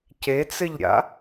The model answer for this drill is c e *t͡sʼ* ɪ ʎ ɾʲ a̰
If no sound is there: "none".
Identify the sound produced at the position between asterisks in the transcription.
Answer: t͡s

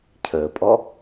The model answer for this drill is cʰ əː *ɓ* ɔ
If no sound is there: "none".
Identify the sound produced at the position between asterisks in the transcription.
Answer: pʼ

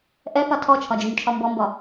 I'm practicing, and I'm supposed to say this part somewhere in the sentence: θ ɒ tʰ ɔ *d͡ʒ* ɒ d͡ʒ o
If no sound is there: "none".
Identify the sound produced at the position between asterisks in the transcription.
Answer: t͡ʃʰ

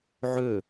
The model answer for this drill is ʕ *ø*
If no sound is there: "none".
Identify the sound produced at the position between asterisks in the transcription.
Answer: ø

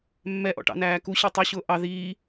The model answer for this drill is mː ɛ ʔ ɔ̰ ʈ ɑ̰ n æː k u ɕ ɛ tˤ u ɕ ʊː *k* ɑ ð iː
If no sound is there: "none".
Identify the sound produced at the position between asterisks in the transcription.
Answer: ʔ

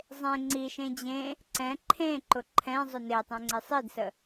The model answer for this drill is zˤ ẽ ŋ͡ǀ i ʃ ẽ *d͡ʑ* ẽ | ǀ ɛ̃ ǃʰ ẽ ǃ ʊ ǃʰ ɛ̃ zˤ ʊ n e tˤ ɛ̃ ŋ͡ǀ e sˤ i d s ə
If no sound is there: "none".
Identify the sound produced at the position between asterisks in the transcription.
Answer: d͡ʑ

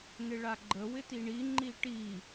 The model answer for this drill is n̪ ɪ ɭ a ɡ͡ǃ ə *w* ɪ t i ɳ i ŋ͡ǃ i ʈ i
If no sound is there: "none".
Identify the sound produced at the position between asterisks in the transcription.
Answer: w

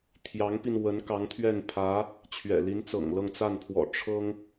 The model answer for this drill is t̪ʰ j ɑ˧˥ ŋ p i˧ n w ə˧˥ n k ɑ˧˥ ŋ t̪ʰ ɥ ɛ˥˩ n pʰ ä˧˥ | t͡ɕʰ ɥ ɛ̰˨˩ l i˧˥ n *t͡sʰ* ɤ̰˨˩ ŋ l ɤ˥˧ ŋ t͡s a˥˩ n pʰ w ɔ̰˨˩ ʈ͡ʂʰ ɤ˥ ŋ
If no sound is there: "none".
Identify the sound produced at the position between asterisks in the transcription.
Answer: t͡s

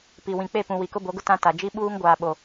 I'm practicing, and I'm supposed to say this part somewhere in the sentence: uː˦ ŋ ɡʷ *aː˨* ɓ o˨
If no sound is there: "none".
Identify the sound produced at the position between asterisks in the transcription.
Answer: aː˨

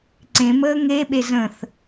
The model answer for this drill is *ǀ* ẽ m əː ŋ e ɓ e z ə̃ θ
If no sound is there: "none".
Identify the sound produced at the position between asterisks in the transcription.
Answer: ǀ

